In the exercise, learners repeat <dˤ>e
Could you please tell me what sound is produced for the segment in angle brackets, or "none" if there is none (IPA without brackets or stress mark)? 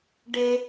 ɖ